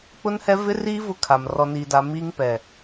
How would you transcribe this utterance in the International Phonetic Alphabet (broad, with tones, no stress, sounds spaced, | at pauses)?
k͡p ʊ˦ n h ɛ˦ v ɪ˦ r iː˦ v ʊ˦ kʰ a˨ m r ɔ˨ n iː˨ d a˨ m iː˦ ŋ p ɛ˨